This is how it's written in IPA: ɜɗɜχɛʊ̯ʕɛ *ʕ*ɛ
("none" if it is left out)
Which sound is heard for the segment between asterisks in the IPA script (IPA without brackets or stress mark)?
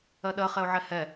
h